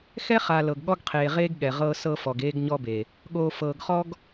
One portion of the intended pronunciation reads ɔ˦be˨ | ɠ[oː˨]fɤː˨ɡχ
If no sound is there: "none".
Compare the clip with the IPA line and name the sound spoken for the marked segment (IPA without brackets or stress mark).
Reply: oː˨